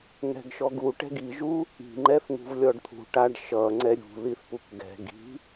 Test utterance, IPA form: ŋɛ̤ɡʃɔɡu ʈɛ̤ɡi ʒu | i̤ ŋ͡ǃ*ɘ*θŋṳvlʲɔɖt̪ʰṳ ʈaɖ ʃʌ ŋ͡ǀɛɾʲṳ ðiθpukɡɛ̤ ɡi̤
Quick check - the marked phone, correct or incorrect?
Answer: incorrect